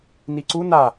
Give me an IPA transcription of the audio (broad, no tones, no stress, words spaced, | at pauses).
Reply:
niǀu na